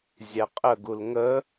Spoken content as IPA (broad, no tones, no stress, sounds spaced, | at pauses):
zʲ æ qʼ ə ɡ u l ŋ ə